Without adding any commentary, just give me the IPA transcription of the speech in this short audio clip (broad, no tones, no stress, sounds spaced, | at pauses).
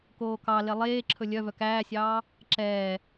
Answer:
k oː k ɑ l e lˠ eː ǁʰ ɵ lʲ œ v œ k æː sʲ ɑː | ǁ ɛː